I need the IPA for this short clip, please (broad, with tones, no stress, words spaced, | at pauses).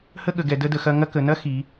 hə˥ɠə˩˧ɡɛ˩˧ də˥də˩˧xɐ˥ ŋɐ˥ kə˩˧nɐ˥xi˩˧